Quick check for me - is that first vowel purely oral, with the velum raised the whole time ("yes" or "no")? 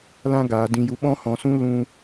no